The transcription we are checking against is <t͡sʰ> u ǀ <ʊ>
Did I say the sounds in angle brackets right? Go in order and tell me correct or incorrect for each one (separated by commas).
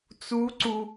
incorrect, incorrect